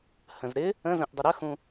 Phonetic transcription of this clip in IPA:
hə̃zɾɪ | ə̃zə̃ʔ dˤɪɾəxũ

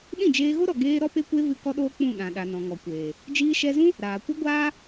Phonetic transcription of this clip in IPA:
ɗĩ˦˨d͡ʒeː˧ɣo˦ɾɔ˨ ɡeː˧ ɾɔ˦pe˦kʷe˦ vɨ˦ kɔ˦ɗoː˦ k͡pũ˦˨ɗã˨ɗa˨ nɔ̃˨ŋɔ˨kʷeː˨ | d͡ʒiː˧ʃɛ˧zũ˦ | ɾaː˨kʷɨ˦ ɡʷaː˦

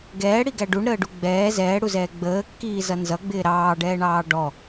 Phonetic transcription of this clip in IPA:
ɡɛːɽiɡæ ɖuɳɾəːɖu ɡ͡bɛː zɛːɽuzɛː ɡ͡bəːkːiːzʌ nzʌɡ͡bɪː ɾɑːɖɛːɳɑː ɖɔ

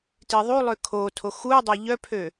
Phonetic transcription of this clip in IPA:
tiðˤu lˠøkʰotʰo xudˤa ʎœpʰø

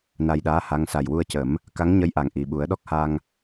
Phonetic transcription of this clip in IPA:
na˧jɗaː˧˥ ha˧˥ŋ sa˨˩jwu˧ə̯cə˨˩˦m | ka˧˥ŋɲə˧˥jʔa˨˩ŋ ʔi˨˩ɓu˨˩˦ə̯ɗɔ˦˥k̚ha˧ŋ

